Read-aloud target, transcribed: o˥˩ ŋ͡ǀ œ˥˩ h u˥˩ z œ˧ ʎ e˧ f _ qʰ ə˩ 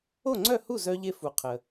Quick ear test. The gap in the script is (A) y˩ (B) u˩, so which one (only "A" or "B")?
B